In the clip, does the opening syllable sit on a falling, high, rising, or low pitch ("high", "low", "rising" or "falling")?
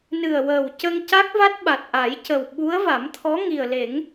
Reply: low